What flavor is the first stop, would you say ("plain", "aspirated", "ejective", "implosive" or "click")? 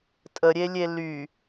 ejective